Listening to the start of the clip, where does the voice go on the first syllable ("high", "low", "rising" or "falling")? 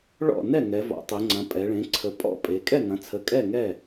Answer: falling